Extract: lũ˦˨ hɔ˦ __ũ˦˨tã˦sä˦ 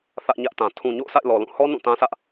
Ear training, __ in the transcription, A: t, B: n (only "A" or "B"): B